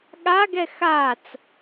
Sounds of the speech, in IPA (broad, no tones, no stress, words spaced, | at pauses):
ɠaɡɛ xat͡s